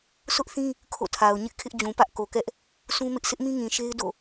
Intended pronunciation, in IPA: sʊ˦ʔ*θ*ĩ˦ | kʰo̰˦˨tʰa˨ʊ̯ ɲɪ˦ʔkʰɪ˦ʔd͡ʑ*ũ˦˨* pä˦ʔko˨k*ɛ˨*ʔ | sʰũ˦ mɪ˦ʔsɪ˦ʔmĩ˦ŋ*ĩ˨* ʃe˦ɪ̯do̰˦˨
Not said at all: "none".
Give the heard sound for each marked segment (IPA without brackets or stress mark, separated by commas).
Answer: θ, ũ˨, ɛ˦, ĩ˨